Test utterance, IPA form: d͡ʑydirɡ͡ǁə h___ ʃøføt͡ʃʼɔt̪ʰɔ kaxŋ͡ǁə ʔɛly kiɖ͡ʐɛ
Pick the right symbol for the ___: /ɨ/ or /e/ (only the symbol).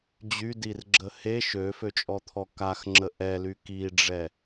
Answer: e